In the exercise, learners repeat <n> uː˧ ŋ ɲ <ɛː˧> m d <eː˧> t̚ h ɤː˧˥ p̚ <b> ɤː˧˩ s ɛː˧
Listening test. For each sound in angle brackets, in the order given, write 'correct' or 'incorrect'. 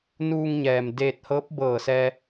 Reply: correct, incorrect: ɛː˩, correct, correct

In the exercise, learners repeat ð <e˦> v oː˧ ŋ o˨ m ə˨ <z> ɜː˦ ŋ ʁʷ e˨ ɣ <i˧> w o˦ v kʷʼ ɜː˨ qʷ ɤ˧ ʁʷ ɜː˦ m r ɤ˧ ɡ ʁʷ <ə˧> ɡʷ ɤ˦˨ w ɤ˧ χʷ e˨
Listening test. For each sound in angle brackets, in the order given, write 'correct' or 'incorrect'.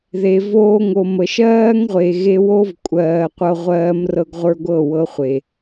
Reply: incorrect: e˨, incorrect: ʃ, incorrect: e˧, incorrect: ə˞˧

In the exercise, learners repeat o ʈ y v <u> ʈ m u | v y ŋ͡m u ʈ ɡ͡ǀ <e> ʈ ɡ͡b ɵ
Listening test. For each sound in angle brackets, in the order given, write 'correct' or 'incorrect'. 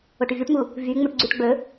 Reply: incorrect: y, incorrect: y

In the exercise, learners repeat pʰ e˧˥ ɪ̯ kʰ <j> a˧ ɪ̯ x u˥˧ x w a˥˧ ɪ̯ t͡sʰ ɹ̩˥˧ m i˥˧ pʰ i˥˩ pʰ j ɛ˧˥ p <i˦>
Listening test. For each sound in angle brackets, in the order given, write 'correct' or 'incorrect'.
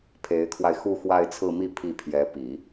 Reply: incorrect: w, incorrect: i˨˩˦

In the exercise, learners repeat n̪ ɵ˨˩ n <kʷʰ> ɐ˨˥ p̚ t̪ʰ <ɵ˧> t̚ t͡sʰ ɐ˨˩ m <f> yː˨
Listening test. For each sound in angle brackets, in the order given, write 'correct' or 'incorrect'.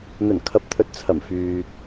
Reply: incorrect: kʰ, incorrect: ɵ˨˥, correct

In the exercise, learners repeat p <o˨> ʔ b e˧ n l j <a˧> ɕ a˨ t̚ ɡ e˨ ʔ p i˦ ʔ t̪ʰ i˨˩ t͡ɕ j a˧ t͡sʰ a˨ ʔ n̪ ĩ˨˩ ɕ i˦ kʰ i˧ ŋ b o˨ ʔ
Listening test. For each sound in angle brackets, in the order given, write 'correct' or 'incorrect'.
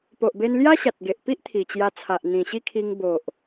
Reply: correct, incorrect: a˦

